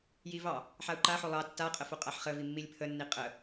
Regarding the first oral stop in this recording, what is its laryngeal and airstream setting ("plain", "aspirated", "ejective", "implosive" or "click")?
click